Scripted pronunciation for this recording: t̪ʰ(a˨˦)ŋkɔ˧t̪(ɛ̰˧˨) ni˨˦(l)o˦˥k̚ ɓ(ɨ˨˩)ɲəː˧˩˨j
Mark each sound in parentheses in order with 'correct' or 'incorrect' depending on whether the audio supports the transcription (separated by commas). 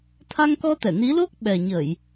incorrect, incorrect, correct, incorrect